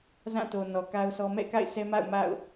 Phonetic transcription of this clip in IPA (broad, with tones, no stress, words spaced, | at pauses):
zã˦˨ to˨ nɔ˨ka˦ʊ̯sɔ˦ mɛ̰˦˨ka̰˦˨ɪ̯sɛ˦ma̰˦˨ʊ̯ ma̰˦˨ʊ̯